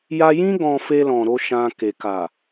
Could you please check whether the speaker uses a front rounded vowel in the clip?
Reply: no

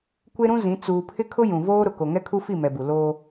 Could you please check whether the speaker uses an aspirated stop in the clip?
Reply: yes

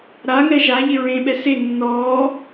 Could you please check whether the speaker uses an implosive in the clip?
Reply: yes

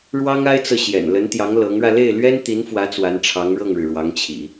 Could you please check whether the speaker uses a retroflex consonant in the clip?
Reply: yes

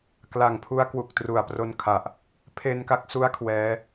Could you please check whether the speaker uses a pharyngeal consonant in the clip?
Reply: no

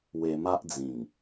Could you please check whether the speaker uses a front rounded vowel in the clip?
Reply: no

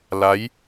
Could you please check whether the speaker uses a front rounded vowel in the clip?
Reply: no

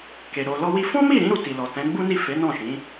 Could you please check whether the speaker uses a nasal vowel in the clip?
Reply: yes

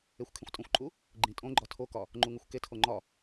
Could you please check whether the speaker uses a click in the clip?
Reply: yes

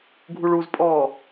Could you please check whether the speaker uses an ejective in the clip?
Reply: yes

